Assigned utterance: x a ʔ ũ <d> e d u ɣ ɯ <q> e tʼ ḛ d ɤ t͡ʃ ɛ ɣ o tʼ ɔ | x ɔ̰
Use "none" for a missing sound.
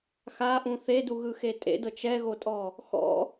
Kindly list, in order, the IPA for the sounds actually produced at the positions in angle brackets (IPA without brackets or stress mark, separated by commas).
θ, x